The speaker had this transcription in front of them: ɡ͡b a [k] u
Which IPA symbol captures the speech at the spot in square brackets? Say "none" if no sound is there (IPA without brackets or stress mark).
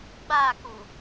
k